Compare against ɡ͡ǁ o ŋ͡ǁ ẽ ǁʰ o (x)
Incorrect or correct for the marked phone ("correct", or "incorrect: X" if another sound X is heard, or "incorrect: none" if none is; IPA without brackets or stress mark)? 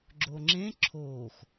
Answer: correct